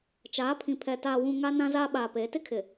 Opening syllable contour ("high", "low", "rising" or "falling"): rising